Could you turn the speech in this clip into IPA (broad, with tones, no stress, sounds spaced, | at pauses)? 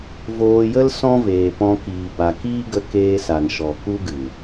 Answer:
v oː˧ j ə˦ l s ɔ̃˦ v eː˨ p ɔ̃˧ k iː˨ b a˨ k iː˦ ɡ ə˧ k eː˧ s a˨ n ʃ ɔ˨ k u˦ ɡ ɨ˨